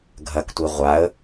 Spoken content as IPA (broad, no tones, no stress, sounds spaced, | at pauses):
ɡʱ ɐ k tʷ i ʁʷ a ə̯